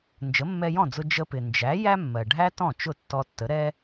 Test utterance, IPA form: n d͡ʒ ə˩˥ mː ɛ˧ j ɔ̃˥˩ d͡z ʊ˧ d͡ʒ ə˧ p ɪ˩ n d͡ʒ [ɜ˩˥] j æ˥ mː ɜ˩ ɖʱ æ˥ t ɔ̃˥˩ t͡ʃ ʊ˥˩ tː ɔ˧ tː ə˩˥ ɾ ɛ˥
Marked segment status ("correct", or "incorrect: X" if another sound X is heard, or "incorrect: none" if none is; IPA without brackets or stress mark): incorrect: æ˩˥